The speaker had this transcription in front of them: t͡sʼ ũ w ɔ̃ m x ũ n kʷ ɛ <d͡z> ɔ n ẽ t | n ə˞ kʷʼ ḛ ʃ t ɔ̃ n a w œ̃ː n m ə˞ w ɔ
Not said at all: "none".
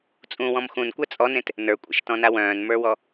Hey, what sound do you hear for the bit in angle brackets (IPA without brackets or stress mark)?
t͡sʼ